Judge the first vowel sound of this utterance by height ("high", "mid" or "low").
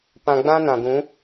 low